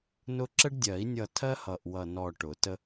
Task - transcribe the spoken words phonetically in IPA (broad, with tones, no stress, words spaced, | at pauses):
nʊ˦ ǁə˦ɖdʲɜ˨˩˦i̯nʲʌ˧˩tʰɜ˦ hʌ˧˩ʔwʌ˧˩ nɔ˧˩ ʈʊ˨˩˦tə˦